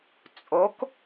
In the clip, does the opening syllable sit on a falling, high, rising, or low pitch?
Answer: rising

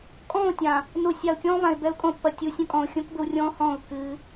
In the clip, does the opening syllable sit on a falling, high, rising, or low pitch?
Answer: falling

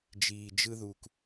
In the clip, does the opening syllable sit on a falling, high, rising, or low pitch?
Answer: low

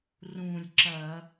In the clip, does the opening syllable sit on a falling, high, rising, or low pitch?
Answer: low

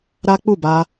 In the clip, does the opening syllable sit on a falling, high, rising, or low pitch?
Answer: high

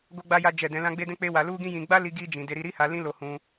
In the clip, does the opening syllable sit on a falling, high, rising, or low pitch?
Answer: high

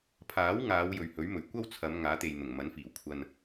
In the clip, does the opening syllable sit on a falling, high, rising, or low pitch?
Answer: rising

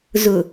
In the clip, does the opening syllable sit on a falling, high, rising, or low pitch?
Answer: low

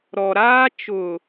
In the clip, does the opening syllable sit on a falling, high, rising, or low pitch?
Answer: low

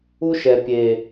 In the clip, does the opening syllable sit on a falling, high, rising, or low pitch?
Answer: high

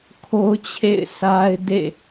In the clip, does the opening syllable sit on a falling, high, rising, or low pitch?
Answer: high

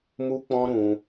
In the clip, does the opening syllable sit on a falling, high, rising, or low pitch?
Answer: high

